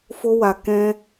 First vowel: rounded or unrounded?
rounded